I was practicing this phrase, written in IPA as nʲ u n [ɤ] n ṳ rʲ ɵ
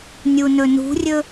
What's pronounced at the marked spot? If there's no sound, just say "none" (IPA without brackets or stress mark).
ɵ